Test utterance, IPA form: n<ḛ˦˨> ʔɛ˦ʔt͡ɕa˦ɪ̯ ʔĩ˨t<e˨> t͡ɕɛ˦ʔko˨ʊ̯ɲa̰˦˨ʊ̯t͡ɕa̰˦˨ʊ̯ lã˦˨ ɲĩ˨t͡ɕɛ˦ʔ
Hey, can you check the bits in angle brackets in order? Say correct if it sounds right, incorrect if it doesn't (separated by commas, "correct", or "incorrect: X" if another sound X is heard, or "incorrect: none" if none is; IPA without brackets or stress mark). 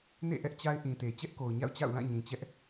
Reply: correct, correct